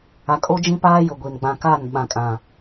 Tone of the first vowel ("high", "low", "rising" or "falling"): low